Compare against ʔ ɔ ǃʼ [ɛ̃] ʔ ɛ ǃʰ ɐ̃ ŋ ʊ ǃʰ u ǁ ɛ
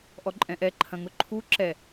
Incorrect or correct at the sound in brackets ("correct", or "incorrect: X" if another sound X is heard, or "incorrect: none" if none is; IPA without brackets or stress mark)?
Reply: correct